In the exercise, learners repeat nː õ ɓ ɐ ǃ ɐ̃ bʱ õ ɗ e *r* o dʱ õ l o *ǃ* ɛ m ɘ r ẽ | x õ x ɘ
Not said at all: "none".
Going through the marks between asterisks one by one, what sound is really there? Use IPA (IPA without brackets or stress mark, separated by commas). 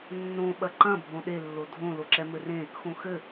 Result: lː, ǁ